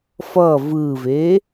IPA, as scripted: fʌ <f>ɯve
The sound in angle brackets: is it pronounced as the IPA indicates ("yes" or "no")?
no